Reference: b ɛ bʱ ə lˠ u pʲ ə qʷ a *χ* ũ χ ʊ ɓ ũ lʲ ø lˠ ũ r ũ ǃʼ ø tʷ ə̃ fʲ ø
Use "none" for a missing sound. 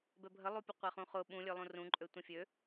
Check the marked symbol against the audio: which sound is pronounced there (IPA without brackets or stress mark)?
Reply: χ